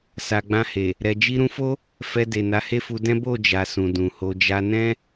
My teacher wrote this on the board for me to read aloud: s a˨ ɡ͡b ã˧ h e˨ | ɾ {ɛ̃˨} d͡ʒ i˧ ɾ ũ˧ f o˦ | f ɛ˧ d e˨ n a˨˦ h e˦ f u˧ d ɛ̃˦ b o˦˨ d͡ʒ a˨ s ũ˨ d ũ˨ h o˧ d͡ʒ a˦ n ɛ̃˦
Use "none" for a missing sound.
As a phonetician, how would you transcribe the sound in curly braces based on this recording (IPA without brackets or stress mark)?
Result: ɛ˨